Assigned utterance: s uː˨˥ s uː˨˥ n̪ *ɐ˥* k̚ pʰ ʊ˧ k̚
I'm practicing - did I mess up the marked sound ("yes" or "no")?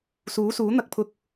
yes